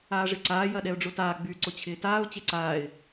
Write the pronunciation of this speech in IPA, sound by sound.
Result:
aː ʐ ɪ ǀ aː j ɐ ɗ ɛ ʊ̯ ɖ͡ʐ ʊ t aː ɡ͡b y ǀ ʊ t͡ɕʰ ɪː t aː ʊ̯ t͡ɕ e ǀ aː ɪ̯

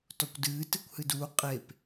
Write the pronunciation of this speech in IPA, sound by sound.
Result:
t ɔ kʷ d ɨː t ɨ kʷ h ɨ d uː qʼ e p

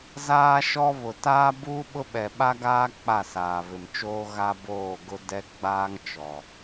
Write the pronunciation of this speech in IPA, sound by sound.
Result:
z aː˦ ʃ ɔ˦ β ʊ˨ t aː˦ b uː˦ ɓ ʊ˦ ɓ ɛ˨ ɓ a˦ ɡ aː˦ k͡p a˦˨ s aː˨ β ɪ˨ m t͡ʃ oː˦ ɣ a˦ b oː˦˨ ɡ ʊ˦ d ɛ˦ ɡ͡b aː˦ ŋ t͡ʃ ɔ˨

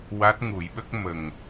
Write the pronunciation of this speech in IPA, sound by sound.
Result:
w a˦˥ t̚ ŋ u˨˩˦ j ɓ ə˦˥ k̚ m ə˨˩ ŋ

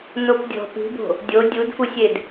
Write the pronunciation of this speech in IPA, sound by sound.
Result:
n o p dʲ ɔ̤ p i̤ b o̤ | dʲ o dʲ u d f u sʲ e d

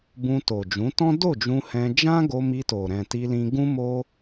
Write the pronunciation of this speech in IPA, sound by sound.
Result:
b ũ˧ t o˨ d͡ʒ ũ˨˦ t ɔ̃˦ d o˦˨ d͡ʒ ũ˧ h ɛ̃˧ d͡ʒ ã˦ ɡ o˧ m i˧ t o˨ ɾ ɛ̃˨ t i˧ l ĩ˧ ɡ ũ˦ m o˦

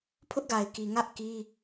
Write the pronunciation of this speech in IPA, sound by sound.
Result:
pʰ ʊ˦ ʔ ɡ a˨ ɪ̯ k i˨ ŋ ä˦ ʔ k i˦

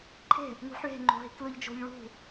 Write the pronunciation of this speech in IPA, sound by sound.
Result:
ǃʰ e̤ | ŋ ṳ ħ ɭ e̤ ŋ͡ǃ o̤ ɦ i̤ k l ɯ ʎ d͡ʒ o̤ ʎ ɭ ṳ

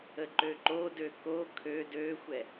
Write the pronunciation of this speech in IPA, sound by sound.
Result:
ə ǃ ø ǃ o d ø k o kʰ ø d ø xʷ ɛ

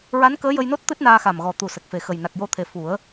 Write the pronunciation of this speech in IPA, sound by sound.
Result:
ɹ a˧˥ n k əː˧˥ j ə˧ j n o˦˥ t̚ t̪ ɨ˦˥ t̚ n aː˧ x a˨˩ m ɣ ɔ˨˩ t̪ u˨˩ s ə˨˩ k̚ f e˨˩ x ə˨˩ j n a˨˩ k̚ j o˧ t̪ʰ e˨˩ f u˨˩˦ ə̯

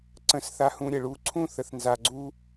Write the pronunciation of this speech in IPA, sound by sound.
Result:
ǀ ə̃˧ s θ a˧ h ũ˧ ɾʲ ə˩ ɭ u˧ ǀʰ ũ˥ θ ə˧ θ n z a˧ ɡ͡ǀ u˥

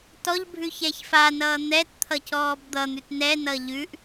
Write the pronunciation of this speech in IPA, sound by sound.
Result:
t ɔ ʎ bʱ ʉ ç ɛ ç f a n ʌː n̪ ɛ t t̪ʰ ʌ c ɔː b d̪ ʌ n̪ ʉ t n ɛ n ʌ ʎ ʉ ʔ

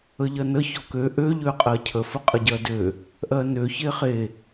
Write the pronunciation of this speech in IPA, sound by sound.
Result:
ə ʎ ɜ n ə ç ɔ k ø ʔ ø ʎ ø qʼ ɜ cʰ ə f ə qʼ ə ɟ ɜ d ø | ʔ ɜ n ø ç e χ e

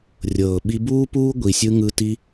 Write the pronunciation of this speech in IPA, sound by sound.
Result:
rʲ ɤː˨ ɓ i˧ b uː˦ p uː˦ ɡʷ i˨ sʲ ɯ˧ ŋ ɯ˧ t i˧

